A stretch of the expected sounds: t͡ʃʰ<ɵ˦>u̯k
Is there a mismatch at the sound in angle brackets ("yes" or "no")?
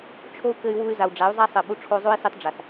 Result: yes